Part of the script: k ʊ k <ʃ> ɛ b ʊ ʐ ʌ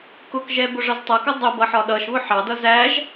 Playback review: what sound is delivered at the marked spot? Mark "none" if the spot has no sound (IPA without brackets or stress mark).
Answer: ʒ